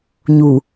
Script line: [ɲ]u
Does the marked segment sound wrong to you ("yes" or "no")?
no